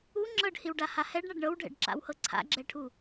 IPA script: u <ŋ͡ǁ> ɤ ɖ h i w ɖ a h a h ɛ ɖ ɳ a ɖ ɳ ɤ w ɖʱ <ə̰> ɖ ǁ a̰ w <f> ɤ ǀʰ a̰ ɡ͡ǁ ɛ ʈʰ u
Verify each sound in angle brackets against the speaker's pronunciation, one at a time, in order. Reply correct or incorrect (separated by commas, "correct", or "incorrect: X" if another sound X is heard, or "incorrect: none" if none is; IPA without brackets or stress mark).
correct, incorrect: ɛ̰, incorrect: h